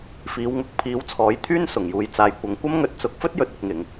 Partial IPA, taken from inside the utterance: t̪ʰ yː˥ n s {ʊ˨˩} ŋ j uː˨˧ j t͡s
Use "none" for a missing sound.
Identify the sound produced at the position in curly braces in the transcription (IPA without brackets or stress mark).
ʊ˨˩